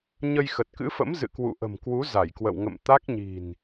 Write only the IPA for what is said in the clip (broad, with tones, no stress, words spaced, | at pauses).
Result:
ɲə˧jxə˨˩t̚kɨ̰˧˥fə̰˧˥m zɨ̰˧˨kwṵ˧˨ʔə̤˨˩mkwu˨˦ za˧˩jkwə̰˧˨wŋə̰˧˨m t̪a˦˥k̚ɲi̤˨˩n